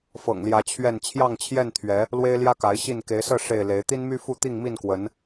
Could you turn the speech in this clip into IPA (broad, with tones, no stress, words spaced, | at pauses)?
fɤ̰˨˩ŋljä˨˦ t͡ɕʰɥɛ˥˨n t͡ɕʰjɑ˥˨ŋt͡ɕʰjɛ˥˨nt̪ʰɥɛ˨˦ | lwe˦ɪ̯ljä˦ka˨˦ɪ̯ ɕi˥˨n ke˨˦ɪ̯sɤ˥˨ ʂe˥˨ɪ̯le˨˦ɪ̯ t̪i˦nmy˦ fu˥˨t̪i˥˨ŋmi˥˨nkwə˨˦n